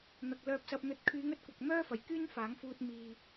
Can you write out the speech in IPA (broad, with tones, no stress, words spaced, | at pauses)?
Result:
n̪ɐ˨k̚ lœː˧p̚sɐ˧p̚n̪ɵ˧t̚ kʰyː˨˧ŋɵ˨t̚kʷɐ˨k̚ mœː˥fɐ˨˩jkyː˥n faː˨˥ŋfuː˧t̚ miː˨